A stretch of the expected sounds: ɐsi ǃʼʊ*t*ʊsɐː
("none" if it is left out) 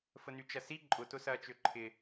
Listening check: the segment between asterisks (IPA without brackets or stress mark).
t